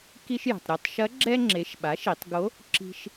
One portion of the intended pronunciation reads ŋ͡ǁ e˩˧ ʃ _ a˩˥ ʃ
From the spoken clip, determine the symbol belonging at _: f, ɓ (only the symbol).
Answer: ɓ